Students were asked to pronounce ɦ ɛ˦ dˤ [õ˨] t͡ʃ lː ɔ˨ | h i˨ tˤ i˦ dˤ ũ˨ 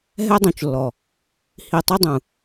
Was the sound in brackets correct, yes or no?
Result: no